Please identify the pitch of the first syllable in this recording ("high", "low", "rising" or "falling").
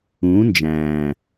rising